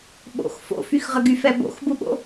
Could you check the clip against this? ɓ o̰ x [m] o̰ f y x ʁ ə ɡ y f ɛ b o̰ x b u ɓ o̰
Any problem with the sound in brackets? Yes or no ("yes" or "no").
yes